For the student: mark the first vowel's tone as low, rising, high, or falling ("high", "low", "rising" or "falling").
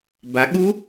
rising